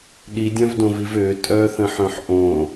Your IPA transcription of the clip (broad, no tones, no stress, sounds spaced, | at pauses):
ɗ i dʲ œ̃ v d õ v i v ø tʼ œ θ ə̃ ħ œ̃ ħ ʔ õ